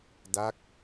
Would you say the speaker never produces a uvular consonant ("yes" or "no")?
yes